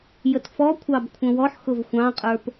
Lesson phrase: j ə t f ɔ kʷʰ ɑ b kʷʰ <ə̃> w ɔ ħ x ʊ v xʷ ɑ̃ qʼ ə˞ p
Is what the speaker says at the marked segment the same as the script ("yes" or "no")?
yes